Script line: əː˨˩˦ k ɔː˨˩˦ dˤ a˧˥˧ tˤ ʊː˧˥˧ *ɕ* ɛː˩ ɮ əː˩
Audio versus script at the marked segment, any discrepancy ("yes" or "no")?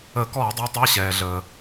no